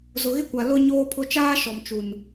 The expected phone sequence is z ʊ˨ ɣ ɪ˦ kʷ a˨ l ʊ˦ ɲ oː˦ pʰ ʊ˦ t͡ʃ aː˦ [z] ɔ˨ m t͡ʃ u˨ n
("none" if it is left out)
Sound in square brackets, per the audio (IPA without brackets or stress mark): ʃ